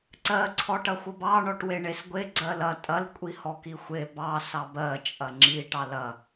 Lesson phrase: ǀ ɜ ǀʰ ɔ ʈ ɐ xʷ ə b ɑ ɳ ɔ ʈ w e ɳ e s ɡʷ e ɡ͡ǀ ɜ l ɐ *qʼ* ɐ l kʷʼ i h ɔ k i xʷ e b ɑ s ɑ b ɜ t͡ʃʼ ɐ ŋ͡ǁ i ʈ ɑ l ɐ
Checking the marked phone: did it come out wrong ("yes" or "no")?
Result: yes